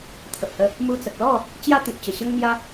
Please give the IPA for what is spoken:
t̪ʰ ə˨ p̚ h ə˧ | m u˧ t͡s ə˨ k̚ l ɔ˥˧ | t͡ɕ j a˦ t̪ ĩ˨ p̚ t͡ɕ ə˨˩ ɕ ə˦ ŋ n̪ j a˦

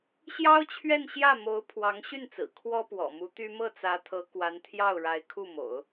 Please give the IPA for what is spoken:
ɕ j ɑ˥ ʊ̯ t͡ɕʰ ɥ ɛ˥˧ n ɕ j ä˥˩ m o˧˥ ʊ̯ pʰ w ɑ˧˥ ŋ ɕ y˥˩ n t͡s ɹ̩˨˩ kʰ w ɔ˥ p w ɔ̰˨˩ m u˧˥ t̪ y˥ m ɤ˥˩ t͡s ä˧˥ t̪ʰ ɤ˧˥ k w a˧˥ n t̪ʰ j ɑ˥˩ ʊ̯ ɻ a˧˥ ɪ̯ kʰ u˥˩ m o̰˨˩˦ ʊ̯

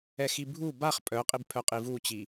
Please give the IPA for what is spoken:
ɛ x i bʱ u b a χ pʼ œ qʼ i b pʰ œ qʼ i v u t͡ɕ i

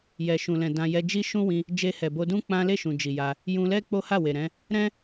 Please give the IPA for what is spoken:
j ɛ˨ ʃ ũ˨ l ɛ̃˨ d ã˧ j ɛ˧ d͡ʒ i˦ ʃ ũ˦ w ĩ˧ | d͡ʒ e˧ h ɛ˨ b o˧ d ũ˦ k͡p ã˦ l e˦˨ ʃ ũ˨ d͡ʒ i˨ j a˧ | j ũ˧ l ɛ˦ k͡p o˦ h a˦˨ w e˨ ɾ ɛ̃˨˦ | ɾ ɛ̃˦

